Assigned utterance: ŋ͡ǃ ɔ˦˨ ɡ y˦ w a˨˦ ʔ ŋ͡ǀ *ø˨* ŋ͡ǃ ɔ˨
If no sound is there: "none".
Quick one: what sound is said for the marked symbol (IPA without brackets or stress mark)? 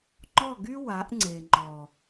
e˨